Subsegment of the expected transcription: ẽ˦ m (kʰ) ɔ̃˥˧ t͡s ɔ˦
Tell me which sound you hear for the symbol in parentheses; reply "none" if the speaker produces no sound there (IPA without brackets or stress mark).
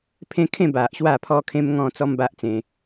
ŋ